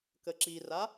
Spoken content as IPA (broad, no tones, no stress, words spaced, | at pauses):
kəǁira